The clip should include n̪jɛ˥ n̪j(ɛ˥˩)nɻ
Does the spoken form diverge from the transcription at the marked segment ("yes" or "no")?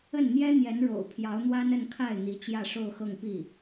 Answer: yes